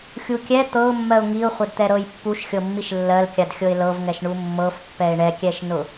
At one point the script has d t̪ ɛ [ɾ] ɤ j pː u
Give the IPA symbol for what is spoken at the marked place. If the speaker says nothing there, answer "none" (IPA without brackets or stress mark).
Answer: ɾ